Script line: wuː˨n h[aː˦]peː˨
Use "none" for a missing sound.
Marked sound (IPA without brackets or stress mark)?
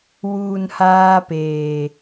aː˦